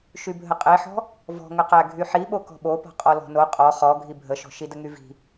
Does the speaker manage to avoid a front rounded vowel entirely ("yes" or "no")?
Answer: no